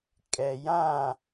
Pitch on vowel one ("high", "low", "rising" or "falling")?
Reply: low